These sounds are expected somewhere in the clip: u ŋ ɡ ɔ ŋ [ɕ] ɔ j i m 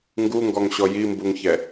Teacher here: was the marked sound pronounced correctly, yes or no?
yes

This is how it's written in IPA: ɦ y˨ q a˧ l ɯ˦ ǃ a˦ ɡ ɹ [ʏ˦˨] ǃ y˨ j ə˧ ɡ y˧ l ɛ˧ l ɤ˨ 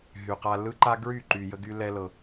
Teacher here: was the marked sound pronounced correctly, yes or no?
no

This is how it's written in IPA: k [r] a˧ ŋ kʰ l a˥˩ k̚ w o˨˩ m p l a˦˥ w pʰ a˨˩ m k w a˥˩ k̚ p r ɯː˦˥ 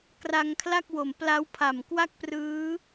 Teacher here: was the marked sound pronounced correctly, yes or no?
yes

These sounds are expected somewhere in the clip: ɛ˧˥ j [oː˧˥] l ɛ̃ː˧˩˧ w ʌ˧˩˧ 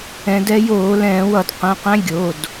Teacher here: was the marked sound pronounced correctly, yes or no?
no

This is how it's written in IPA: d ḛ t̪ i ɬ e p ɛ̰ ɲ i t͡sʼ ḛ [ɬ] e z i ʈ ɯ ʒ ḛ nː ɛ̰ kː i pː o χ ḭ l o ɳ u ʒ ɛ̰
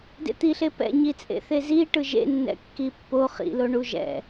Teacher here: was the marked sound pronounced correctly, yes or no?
no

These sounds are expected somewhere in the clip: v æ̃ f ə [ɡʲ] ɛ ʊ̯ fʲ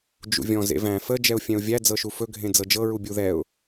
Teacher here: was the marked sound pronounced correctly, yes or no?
no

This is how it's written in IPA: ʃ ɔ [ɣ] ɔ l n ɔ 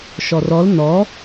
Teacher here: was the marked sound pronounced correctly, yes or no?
no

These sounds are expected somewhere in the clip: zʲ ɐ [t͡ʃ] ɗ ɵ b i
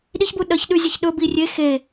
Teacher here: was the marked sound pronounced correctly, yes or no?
no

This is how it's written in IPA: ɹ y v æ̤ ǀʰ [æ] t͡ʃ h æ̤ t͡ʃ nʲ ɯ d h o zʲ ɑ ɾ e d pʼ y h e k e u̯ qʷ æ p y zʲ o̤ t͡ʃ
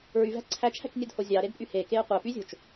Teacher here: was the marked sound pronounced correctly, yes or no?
yes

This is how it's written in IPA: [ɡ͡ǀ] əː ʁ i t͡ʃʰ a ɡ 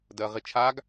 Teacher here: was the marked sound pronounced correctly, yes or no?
no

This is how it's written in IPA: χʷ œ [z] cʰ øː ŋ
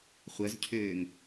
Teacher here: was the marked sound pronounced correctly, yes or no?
yes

